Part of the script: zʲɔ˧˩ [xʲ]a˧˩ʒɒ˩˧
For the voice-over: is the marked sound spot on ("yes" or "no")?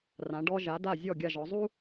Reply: no